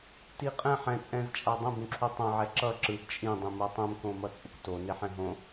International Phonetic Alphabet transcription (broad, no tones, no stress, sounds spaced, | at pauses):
t i qʼ ɛ̃ ħ ɛ̃ t͡sʼ ɛ̃ z t͡ʃʼ a dˤ ɛ̃ b ũ ǁʰ u tˤ õ ʕ ɛ ǁ ʌ ǁ ɯ b t͡ʃʼ ĩ dˤ ĩ m o tˤ ũ m k õ m ʌ t͡sʼ u k t o n e ħ ɛ̃ ɦ õ